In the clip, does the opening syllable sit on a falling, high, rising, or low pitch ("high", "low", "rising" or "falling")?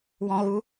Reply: high